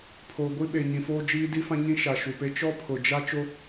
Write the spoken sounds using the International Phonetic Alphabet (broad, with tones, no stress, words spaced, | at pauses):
pʰo˨ɡʷi˦ ɓe˨ɲĩ˨foː˦ d͡ʒiː˦di˦fã˦ɲĩ˦ ʃa˨ʃu˨pe˦ t͡ʃɔ˦pʰʊ˨d͡ʒa˦ t͡ʃo˦